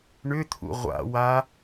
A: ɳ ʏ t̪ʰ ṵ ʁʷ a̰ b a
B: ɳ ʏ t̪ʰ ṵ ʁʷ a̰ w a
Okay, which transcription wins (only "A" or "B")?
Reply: B